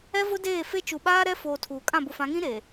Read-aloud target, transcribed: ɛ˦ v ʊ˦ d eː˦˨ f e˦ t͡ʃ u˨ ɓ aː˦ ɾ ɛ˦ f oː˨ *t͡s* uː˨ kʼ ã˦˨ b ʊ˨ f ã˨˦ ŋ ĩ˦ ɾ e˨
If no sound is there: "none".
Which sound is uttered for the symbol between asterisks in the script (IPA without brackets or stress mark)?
tʰ